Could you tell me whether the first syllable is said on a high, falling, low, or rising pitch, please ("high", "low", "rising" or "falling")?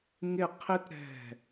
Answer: falling